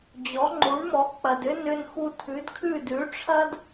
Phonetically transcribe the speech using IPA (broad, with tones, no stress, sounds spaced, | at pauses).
d͡ʑ ɔ˩˥ ŋ͡ǃ u˩˥ ɳ m ɔ˩˥ k͡p ɐ˩ d ʏ˥ n ʏ˧ n x u˧ tʰ ʉ˩˥ d kʰ ʉ˥˩ d ʉ˩˥ ʈ͡ʂʰ ɐ˥ d